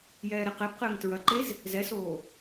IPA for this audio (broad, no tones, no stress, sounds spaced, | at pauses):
j ɛː ɾ ɛ q ɛ b q ɘː ŋ t ɹ ɐ ǃ e z | z ɛ s oː